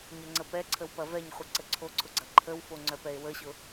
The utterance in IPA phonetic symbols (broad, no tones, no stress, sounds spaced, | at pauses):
ɲ ɛ ŋ͡ǀ ə p ɛ ǀʰ ə w p ɐ v ɛ ɲ χʷ ə ǀ ə ǀʰ o ǀʰ ʊ ɡ͡ǀ ɐ ǃʰ ə w f o ŋ͡ǀ œ p ɛ e̯ w ə ɕ ʊ